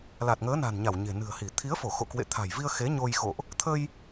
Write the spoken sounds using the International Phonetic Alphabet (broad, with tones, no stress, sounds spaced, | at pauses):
l a˨˩ t̚ ŋ əː˨˦ n a̤˨˩ n ɲ a˧˩ w ɲ e̤˨˩ n ɨ̤˨˩ ə̯ h i˧˩ t̪ʰ i˨˦ ə̯ f o˧˩ x o̰˧˨ k w ḛ˧˨ t̪ʰ a̤˨˩ j v i˧ ə̯ x e˨˦ ɲ o˧ j x o̰˧˨ ʔ | t̪ʰ ə˧ j